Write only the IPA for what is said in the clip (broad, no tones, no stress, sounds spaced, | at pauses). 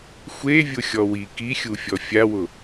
xʷ e vʲ ʊ xʲ ɔ w i k i xʲ u fʲ ɔ fʲ a w ʊ